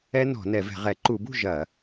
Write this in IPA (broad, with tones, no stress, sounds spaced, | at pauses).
ɛ˦˥ n ɔ̤˧˩˧ n ɛ˧˩˧ v ɛ̤˧˩˧ ʁ ɛ˧˩˧ ǃ u˧˩˧ b ṳ˥˨ ʒ ɐ˧˩˧